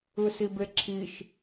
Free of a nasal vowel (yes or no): yes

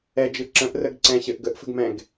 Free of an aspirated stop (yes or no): yes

